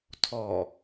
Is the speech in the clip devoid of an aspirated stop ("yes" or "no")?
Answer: no